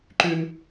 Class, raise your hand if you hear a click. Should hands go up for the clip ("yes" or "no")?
yes